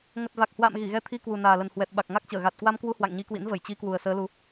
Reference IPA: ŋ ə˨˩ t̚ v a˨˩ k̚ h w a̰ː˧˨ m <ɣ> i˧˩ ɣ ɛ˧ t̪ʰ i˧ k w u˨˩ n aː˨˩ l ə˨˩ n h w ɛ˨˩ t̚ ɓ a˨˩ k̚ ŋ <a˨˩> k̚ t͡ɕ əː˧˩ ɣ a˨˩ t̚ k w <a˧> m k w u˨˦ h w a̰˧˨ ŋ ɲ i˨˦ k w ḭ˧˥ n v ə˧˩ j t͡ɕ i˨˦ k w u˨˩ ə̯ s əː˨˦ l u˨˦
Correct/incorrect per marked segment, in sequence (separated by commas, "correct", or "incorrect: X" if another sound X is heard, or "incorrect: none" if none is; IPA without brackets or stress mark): correct, incorrect: a˦˥, correct